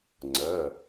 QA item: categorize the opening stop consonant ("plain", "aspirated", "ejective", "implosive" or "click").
click